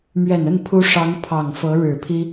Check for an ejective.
absent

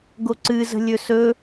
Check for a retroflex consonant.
absent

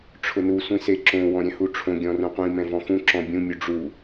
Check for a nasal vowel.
present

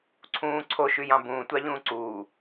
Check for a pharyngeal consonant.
absent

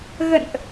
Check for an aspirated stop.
absent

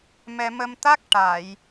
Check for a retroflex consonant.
present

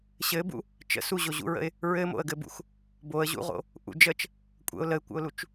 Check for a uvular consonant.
present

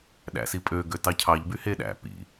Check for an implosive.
present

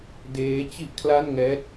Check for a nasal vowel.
absent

